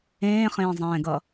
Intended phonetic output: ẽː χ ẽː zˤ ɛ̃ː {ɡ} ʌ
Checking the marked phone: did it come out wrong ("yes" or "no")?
no